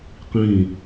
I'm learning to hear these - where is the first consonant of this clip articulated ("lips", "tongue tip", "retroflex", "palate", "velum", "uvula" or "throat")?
uvula